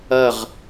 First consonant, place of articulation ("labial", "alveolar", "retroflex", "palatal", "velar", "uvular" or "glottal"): uvular